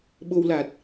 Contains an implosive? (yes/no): yes